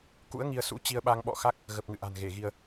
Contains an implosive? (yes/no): yes